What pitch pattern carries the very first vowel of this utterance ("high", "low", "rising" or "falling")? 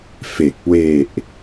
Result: low